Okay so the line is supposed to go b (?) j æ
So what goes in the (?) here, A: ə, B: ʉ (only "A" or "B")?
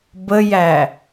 A